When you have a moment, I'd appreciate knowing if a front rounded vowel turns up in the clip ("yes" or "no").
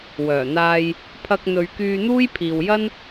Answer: yes